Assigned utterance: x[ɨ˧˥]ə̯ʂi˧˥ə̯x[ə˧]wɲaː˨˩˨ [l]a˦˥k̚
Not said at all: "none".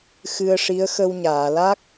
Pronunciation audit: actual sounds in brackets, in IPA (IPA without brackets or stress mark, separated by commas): ɨ˧, ə˧, l